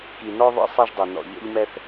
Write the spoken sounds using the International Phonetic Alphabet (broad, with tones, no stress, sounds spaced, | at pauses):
k i˨ n ɔ˥ ðˤ ḭ˦ sˤ ɛ˥ ʒ dˤ i˩ n ɔ̰˨ ʎ ɔ̰˥ ʎ m ɛ˥ θ